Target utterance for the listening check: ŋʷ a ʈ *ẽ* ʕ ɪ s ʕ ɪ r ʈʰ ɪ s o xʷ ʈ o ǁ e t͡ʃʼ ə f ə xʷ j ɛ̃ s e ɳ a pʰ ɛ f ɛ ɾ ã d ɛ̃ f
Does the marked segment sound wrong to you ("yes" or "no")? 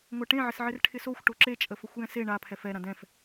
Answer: no